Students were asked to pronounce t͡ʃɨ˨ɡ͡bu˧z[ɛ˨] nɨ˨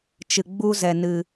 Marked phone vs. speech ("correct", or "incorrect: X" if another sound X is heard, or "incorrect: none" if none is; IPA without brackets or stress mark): correct